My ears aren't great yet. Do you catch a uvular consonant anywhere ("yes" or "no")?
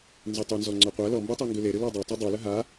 yes